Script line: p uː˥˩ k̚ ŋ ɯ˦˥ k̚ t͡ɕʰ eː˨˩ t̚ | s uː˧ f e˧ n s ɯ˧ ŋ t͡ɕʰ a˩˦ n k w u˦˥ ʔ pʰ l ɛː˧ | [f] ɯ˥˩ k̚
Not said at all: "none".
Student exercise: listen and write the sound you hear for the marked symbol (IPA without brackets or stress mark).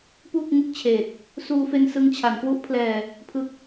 pʰ